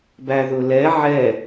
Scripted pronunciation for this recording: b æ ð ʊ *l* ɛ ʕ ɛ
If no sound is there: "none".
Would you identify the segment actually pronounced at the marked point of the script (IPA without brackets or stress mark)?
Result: l